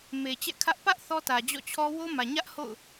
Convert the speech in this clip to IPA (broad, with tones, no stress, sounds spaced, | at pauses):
m e˨ t͡ɕ ɛ̰˦˨ kʰ ä˦ ʔ p ä˦ ʔ θ ɔ˦ t ä˨ d͡ʑ ɔ̰˦˨ t͡ɕʰ ɔ˦ w o˦ m ä˨ ɲ ä˦ ʔ h o̰˦˨ ʊ̯